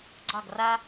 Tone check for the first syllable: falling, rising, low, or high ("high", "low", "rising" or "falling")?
falling